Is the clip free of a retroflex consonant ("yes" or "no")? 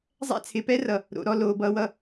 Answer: yes